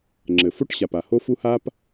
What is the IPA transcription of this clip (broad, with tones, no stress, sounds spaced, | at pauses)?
ŋ͡ǁ ɘ˩ f o˥ ʈ ɕ a˩ p a˩ h o˥ f u˥ h a˥ p